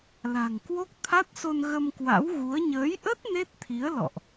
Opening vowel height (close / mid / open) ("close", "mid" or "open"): open